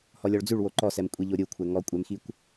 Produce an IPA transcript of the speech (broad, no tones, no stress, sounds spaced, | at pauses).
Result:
h ɔ lʲ ɔ ɭ d͡z ʉ ɭ w o ǃ ɔ s ɛ m kʷʼ i ʎ o ɾʲ u kʷʰ ɛ ŋ ɔ kʷʼ ɛ m x i kʷ